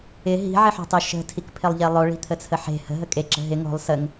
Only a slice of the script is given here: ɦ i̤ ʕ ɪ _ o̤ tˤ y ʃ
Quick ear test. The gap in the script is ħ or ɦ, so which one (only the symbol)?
ħ